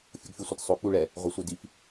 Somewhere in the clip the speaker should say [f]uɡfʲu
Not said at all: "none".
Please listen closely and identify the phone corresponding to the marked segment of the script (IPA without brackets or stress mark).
fʲ